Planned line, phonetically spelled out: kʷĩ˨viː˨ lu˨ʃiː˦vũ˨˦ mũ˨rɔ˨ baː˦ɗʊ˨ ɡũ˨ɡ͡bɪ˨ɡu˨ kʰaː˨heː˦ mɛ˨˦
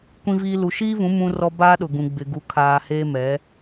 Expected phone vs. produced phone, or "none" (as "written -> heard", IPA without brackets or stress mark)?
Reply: none